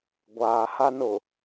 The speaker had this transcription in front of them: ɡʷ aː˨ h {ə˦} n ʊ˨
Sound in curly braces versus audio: incorrect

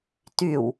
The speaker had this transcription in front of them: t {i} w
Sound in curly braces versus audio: incorrect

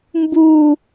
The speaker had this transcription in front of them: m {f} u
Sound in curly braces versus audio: incorrect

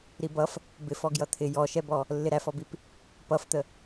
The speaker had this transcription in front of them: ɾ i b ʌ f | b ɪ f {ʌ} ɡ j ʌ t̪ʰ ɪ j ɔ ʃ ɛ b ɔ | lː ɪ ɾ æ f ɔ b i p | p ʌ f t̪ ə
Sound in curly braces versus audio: incorrect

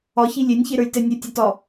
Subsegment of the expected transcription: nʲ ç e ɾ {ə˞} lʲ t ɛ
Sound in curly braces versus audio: correct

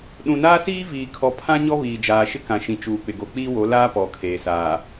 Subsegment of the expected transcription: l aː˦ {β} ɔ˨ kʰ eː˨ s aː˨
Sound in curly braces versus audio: incorrect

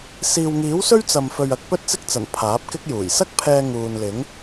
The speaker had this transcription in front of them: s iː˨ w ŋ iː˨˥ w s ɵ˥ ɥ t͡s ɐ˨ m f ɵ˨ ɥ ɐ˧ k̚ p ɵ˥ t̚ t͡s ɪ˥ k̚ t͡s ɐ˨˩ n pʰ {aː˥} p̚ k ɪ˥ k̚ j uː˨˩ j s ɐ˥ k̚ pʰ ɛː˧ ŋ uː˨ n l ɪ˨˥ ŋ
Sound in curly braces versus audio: incorrect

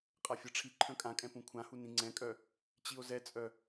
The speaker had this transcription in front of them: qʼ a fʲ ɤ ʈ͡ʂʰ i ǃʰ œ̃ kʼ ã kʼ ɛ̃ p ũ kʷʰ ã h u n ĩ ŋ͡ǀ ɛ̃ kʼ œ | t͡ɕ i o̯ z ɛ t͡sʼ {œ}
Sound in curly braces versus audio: correct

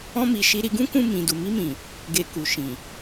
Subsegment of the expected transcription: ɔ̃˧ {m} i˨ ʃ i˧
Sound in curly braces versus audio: correct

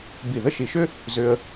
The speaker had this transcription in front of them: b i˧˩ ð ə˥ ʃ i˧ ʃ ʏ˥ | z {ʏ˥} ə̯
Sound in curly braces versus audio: incorrect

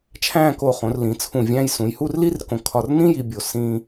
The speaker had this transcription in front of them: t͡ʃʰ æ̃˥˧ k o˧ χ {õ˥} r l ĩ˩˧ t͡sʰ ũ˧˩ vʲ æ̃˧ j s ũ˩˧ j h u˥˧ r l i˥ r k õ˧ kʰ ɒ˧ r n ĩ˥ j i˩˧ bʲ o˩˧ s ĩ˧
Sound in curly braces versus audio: incorrect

